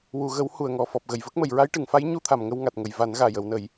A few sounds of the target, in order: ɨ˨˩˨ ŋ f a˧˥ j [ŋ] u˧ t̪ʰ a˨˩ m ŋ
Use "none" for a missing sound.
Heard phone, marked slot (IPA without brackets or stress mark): ɲ